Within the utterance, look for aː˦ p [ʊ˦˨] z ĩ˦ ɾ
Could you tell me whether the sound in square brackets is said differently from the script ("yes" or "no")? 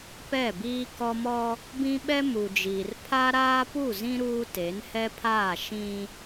yes